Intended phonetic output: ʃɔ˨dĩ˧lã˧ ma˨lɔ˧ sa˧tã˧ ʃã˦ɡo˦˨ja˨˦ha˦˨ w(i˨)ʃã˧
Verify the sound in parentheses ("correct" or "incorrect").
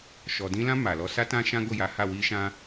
incorrect